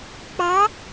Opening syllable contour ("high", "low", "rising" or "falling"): rising